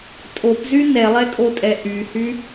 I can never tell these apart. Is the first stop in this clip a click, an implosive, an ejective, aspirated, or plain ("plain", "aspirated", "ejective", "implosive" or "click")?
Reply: ejective